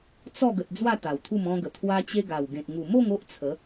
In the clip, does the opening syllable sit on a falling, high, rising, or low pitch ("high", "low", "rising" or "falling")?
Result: falling